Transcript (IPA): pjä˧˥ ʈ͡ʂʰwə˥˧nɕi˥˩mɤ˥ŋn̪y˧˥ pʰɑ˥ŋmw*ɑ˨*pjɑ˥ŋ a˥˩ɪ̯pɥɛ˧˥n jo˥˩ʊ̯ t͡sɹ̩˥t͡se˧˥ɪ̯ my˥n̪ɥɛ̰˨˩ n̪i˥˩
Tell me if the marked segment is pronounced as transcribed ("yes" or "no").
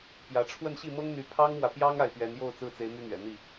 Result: no